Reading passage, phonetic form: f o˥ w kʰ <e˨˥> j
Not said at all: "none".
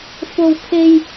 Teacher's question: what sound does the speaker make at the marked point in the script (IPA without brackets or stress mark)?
e˥